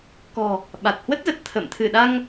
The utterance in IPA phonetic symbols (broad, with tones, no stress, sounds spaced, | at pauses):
k ɔ̤˨˩ | ɓ a˨˩ t̚ h w ə˦˥ t̚ z ə˨˩ t̚ t̪ʰ ə̰ː˧˨ m t̪ʰ ɨ˧˩ ɗ a˧ ŋ